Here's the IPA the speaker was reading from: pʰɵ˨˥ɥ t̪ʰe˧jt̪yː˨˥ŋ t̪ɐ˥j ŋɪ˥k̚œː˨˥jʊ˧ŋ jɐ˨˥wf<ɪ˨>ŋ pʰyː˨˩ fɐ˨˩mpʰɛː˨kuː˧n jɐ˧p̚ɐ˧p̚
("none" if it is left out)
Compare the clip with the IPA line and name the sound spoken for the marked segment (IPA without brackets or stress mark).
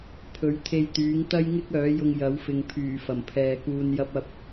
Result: ɪ˨